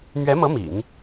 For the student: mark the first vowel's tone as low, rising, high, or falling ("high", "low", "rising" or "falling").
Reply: rising